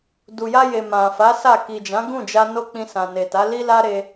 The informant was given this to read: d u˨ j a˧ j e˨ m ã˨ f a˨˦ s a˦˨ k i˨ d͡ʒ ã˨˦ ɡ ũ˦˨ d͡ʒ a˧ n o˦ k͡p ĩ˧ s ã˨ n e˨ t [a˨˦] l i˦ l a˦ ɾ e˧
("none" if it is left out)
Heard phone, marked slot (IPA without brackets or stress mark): a˨˦